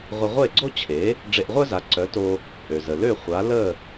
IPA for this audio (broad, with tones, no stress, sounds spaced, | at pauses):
ʁʷ ə˧ ʁʷ e˥˩ ɡ͡ǀ o˥ t͡ɕʰ e˩˥ | ɖ͡ʐ e˧ ʔ ʁʷ œ˥ z a˩˥ ǀ œ˩˥ t o˧ | ʔ ø˩ z ə˩ l ø˥˩ χʷ a˩˥ l ə˥˩